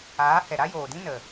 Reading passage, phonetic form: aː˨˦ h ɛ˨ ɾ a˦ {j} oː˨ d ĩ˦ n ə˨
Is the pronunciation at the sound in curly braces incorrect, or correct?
correct